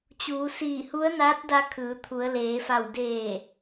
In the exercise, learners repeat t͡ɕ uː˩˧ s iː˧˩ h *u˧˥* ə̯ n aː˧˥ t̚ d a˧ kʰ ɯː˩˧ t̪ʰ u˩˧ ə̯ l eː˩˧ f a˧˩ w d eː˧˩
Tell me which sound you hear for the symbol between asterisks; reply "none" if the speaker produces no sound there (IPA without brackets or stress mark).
u˧˥